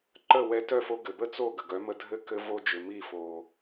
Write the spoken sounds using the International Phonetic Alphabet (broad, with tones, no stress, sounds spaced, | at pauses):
ǃ ə˥˩ w ɛ˧ t œ˥˩ f o˧ ɡ ɘ˩ b ə˥ t͡s o˥˩ ɡ ə˩ ɡ œ˩˥ m ə˧ dʱ ɘ˥˩ k ɘ˧ v o˧ d͡ʒ ʏ˩ m i˥˩ f o˩